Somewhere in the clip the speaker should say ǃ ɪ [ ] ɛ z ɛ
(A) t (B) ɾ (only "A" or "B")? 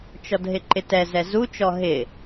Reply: A